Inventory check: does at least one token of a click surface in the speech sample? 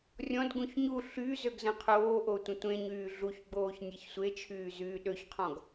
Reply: no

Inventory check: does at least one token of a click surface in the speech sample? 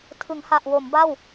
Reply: no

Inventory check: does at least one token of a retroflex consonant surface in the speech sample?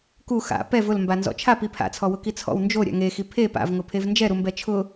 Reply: no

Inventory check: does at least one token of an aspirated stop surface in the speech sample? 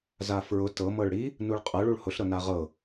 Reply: no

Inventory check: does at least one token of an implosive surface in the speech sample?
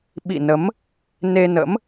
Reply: yes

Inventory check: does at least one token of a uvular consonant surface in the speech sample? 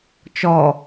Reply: no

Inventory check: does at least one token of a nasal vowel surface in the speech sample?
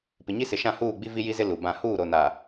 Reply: yes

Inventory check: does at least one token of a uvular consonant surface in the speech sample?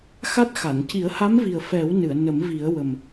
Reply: no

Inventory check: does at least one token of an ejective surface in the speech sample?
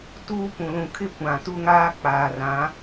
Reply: no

